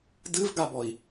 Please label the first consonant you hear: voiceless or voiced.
voiced